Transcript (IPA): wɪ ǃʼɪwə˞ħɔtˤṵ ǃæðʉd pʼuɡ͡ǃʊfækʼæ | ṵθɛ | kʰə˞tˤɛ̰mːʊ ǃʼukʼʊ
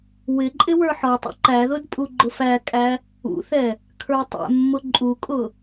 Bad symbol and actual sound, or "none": ʉ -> ʊ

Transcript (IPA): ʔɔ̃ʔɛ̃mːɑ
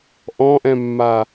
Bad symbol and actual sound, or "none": ɑ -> a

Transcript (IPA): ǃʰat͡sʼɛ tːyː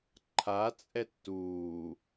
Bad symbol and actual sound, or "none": yː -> uː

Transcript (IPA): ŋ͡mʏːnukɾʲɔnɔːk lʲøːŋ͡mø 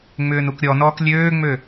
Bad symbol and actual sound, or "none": none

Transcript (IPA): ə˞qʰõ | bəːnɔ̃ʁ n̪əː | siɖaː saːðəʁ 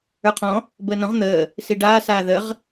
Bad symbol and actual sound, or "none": õ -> ɔ̃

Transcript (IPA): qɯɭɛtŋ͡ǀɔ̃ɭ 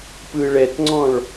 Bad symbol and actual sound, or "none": q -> p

